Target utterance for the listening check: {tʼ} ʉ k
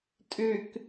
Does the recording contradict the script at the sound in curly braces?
no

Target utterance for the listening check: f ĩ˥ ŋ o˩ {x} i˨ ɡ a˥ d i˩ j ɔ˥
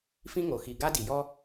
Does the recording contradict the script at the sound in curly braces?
no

